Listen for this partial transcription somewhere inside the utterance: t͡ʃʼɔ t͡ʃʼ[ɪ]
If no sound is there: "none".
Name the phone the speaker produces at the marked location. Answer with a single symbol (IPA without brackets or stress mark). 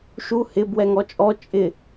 ɪ